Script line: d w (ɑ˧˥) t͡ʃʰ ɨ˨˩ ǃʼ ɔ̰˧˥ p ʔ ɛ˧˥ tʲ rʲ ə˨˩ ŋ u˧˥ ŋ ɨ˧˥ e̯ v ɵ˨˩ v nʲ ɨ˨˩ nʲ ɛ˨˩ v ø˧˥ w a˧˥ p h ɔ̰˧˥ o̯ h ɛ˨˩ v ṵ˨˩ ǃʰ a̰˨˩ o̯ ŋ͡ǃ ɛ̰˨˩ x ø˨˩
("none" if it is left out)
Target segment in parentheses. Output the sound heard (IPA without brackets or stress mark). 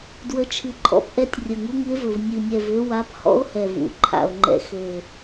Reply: ə˧˥